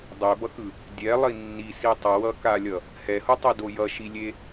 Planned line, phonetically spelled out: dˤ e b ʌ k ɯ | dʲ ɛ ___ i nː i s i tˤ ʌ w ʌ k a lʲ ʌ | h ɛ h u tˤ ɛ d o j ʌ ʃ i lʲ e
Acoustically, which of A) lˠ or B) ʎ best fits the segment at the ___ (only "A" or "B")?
A